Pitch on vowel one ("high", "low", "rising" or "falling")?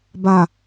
low